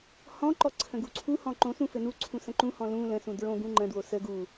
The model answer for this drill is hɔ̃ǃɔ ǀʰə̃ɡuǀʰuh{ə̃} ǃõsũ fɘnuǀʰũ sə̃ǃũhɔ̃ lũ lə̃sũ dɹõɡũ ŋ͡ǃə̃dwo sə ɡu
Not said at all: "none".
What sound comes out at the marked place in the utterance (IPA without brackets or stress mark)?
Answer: ɔ̃